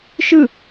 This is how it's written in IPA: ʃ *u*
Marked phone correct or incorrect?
incorrect